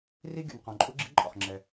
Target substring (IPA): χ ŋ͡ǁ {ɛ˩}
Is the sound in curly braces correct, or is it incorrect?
correct